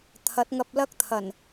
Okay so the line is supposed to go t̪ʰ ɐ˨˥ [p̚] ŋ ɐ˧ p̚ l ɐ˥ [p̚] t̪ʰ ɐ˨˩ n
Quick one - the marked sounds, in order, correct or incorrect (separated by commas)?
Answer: incorrect, incorrect